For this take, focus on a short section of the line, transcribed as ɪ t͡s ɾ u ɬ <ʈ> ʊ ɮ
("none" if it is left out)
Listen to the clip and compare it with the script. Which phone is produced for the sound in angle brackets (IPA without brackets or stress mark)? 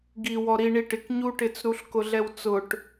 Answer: k